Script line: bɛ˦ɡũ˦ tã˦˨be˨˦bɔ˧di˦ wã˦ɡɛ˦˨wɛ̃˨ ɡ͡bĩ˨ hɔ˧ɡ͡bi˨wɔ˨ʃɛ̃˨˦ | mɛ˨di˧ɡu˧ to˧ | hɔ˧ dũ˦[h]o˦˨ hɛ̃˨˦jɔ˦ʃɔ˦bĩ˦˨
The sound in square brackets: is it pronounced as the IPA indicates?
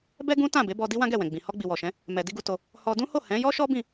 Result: yes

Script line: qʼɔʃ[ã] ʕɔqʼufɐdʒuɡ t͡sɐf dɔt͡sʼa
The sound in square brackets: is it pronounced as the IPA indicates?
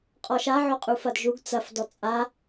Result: no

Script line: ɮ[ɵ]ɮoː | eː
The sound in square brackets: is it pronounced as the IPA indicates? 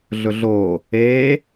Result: yes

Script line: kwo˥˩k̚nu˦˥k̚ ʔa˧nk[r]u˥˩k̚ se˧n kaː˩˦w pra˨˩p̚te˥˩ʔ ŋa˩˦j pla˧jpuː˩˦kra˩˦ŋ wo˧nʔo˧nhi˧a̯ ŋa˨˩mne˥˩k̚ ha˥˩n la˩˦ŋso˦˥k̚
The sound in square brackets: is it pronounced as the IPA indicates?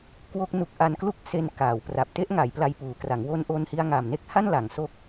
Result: no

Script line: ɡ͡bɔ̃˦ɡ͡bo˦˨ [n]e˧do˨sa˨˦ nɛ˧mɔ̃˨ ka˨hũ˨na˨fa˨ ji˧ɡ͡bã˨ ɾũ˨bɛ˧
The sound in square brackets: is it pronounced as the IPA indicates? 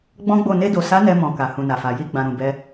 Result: yes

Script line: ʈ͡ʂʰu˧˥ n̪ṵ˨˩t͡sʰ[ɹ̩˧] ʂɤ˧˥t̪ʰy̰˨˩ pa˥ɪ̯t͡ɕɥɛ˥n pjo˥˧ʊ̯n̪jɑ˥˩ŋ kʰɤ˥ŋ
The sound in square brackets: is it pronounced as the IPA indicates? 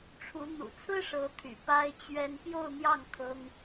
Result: no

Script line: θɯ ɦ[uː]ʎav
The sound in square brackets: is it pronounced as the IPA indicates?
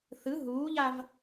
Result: yes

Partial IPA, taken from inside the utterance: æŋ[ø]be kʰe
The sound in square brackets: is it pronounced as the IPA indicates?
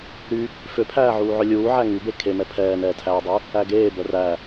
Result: no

